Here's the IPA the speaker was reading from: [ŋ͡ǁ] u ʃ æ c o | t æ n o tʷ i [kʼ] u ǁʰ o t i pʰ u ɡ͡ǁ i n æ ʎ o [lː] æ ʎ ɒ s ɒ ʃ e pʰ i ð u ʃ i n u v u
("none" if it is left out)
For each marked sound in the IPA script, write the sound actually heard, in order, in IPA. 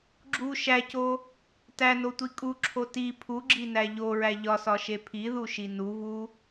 ɡ͡ǁ, kʼ, ɹ

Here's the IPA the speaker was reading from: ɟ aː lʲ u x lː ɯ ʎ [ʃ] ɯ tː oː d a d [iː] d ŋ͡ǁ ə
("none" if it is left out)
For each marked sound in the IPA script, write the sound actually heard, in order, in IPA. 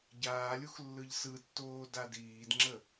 s, iː

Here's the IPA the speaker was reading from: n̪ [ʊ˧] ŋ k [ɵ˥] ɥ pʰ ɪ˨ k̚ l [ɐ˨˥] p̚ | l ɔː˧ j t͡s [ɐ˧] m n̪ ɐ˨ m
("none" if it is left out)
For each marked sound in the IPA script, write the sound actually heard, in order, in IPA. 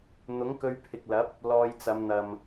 ʊ˨˥, ɵ˧, ɐ˨˥, ɐ˨˧

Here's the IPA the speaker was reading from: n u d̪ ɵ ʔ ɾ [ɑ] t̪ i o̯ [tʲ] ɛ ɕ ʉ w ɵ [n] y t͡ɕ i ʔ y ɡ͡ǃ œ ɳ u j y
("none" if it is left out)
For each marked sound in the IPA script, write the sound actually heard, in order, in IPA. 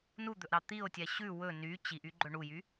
ɑ, tʲ, n

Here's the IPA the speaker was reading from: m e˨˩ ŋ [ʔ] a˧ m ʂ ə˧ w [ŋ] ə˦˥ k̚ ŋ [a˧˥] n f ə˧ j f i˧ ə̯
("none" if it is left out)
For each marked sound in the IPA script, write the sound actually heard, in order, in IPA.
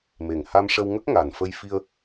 h, ŋ, a˨˩

